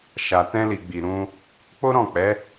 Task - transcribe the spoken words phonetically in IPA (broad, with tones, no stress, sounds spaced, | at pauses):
ʃ a˨ t ɛ̃˧ l i˨ ɡ͡b i˨ ɾ ũ˧ | k͡p o˦ ɾ ɔ̃˦˨ k͡p ɛ˨˦